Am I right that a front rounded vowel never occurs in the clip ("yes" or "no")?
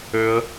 no